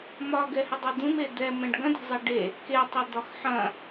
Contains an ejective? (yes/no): no